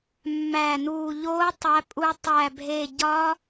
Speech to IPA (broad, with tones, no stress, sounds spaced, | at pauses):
mː æ˧˩ n u˧˩ ʎ o˧˥ tˤ æ˧˥ pʼ u˧˥ tˤ æ˧˩ bʱ e˧˩ ɟ ɒ˧˥